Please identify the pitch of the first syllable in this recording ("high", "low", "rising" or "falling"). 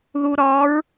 low